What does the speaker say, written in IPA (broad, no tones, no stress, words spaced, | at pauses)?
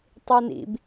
tˤinḭb